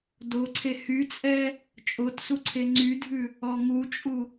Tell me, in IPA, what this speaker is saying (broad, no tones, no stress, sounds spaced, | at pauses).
d o ǀʰ e h y t͡sʼ ɛ | t͡ʃʼ o t s u ǀʰ e ŋ͡ǀ y dʱ ʉ | ɔ ŋ u t͡ʃʼ u